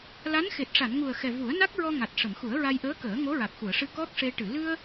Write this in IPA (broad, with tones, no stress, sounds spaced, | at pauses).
l a˧˥ n x e˨˩ t̚ ʂ a˨˩˨ n ŋ u˨˩ ə̯ x ɛ˨˩ v u˨˩˦ ə̯ n a˦˥ k̚ ɹ ɔ˧ ŋ a˨˩ t̚ ʂ ə˨˩˨ m x u˨˩˦ ə̯ ɹ a˧ j ʔ əː˧˥ k əː˨˩˦ ŋ o˧˥ ɹ a˨˩ k̚ x u˨˩˨ ə̯ ʂ ɨ˧ k ɔ˦˥ k̚ ʂ e˧ ʈ ɨ˨˩˨ l ɨ˧ ə̯